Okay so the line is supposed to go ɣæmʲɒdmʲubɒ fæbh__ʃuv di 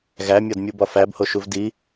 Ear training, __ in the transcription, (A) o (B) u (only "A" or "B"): A